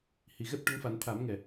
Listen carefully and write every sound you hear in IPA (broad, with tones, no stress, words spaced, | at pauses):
hi˨˩ɣɛ˦˥p̚ ʈə˧˥ŋfa˨˩˦n t̪ʰa˨˩˦mŋɛ˨˩